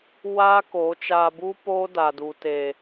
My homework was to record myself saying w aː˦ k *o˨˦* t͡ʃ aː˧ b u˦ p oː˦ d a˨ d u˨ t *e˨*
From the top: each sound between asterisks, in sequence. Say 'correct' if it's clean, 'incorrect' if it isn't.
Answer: correct, correct

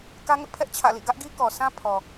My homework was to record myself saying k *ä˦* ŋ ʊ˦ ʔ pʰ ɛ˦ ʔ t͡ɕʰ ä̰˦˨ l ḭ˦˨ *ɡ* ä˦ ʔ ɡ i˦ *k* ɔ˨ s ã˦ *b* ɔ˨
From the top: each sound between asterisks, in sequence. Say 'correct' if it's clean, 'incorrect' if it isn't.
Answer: correct, correct, correct, incorrect: pʰ

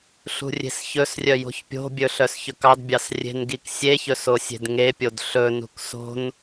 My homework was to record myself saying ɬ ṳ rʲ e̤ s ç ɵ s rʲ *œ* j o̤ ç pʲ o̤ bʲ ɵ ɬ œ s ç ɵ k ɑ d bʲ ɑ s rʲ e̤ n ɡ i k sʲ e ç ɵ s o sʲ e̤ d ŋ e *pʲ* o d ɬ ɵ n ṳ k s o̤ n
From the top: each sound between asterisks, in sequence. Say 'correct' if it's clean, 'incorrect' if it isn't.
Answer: correct, correct

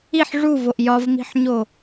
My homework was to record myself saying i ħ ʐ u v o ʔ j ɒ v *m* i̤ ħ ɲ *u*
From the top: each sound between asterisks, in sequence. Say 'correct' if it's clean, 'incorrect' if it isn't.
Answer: correct, incorrect: o

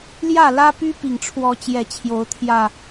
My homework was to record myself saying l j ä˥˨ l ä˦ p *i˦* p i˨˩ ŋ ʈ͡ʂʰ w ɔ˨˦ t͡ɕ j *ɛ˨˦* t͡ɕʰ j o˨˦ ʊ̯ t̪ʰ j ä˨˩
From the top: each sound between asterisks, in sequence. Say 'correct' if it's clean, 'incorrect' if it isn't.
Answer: incorrect: y˦, correct

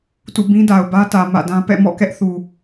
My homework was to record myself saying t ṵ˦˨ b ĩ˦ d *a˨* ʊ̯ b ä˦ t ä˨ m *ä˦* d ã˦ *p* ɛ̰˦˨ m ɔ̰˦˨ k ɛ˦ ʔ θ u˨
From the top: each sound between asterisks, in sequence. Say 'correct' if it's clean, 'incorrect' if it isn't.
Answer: correct, incorrect: ä̰˦˨, correct

